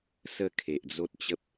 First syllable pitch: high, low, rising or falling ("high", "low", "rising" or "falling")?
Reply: falling